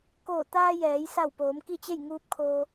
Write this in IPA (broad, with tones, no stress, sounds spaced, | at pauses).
k oː˧˩ t̪ aː˧ j ɛː˩˧ j s a˧˩ w p oː˩˧ m k i˥˨ t͡ɕ e˥˨ j ŋ uː˧˥ p̚ kʰ oː˧